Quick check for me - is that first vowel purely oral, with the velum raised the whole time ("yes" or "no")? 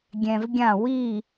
no